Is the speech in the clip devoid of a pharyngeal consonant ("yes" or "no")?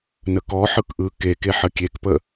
no